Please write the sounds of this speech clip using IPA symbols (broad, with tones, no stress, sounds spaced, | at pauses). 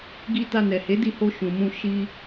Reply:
ɡ i˧ t a˧ n ɛ˨ h e˨˦ d i˦˨ h o˧ ʃ ũ˨ m ũ˧ ʃ i˧